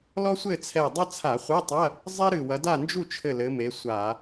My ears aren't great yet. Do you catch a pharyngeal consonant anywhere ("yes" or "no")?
no